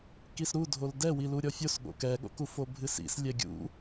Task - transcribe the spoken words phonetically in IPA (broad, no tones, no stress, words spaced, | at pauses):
kisɾudʱol dɛwilu ɾʲɔfʲosɠo̰ kɛɠo̰ku fobʱɨsḭs lʲɛɡʲṵ